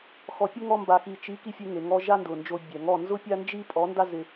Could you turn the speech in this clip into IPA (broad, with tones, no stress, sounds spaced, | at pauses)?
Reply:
x ɔ˨ pʲ ʊ˦ ŋ ɔ˧ m b a˨ x i˨ t͡ʃ i˨˦ k i˧ fʲ e˧ ŋ e˨ ŋ ɔ˧ ʒ a˦ n d ʊ˨ n d͡ʒ o˧ bʲ ɛ˨ ŋ ɔ˦˨ n z ʊ˦ pʲ a˦ n d͡ʒ i˦ pʼ ɔ˨˦ n d a˦ z ɪ˧